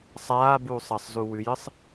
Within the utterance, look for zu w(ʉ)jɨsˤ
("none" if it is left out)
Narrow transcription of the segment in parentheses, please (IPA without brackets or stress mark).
ʉ